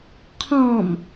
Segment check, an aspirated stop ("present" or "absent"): present